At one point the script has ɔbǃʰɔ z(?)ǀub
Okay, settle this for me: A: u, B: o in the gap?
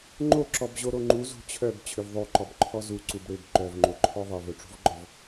A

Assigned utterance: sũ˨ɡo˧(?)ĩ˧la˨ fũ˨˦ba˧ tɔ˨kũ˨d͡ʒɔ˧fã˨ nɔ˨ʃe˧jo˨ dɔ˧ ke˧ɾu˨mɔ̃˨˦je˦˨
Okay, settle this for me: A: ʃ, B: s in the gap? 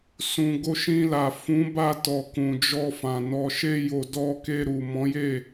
A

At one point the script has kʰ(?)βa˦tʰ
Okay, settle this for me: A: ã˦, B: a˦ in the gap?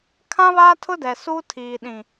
A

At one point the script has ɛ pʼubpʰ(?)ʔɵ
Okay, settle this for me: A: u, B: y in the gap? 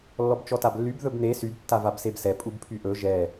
B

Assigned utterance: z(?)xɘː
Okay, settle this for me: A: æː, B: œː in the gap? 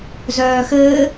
B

